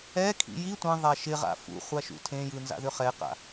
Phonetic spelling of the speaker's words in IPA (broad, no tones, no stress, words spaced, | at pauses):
ɛkʰḭ ji tʷẽ ðˤæʃɪʁa̰ fṵχʷaʃṵ tʰẽjɯ nza̰ðʏχɛqa̰